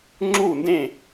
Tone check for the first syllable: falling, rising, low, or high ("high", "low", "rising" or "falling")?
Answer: falling